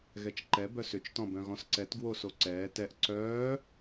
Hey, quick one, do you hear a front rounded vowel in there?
yes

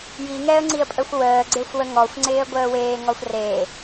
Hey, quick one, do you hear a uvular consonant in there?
no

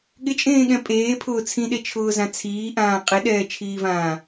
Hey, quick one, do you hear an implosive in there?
yes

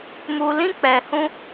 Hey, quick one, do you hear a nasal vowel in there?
yes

